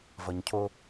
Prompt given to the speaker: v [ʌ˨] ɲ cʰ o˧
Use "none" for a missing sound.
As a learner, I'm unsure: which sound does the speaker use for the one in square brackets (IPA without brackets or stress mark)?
ʌ˨